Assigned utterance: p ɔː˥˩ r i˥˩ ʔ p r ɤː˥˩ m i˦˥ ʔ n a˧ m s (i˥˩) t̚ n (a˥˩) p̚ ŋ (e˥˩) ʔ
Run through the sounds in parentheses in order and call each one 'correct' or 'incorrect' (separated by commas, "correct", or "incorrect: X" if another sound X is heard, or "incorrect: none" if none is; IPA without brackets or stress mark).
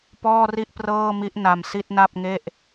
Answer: correct, correct, correct